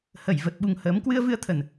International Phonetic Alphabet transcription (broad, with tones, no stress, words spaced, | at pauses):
hə˧˩jvə˨˩t̚ɓu˨˩ŋ həː˨˦m kwɨ˧ə̯vɨ˧ə̯t̪ʰə˨˩n